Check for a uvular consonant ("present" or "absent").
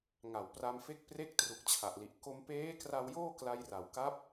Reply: absent